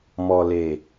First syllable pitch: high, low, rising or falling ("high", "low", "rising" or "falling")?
low